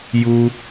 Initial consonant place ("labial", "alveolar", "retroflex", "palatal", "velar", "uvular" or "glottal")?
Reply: palatal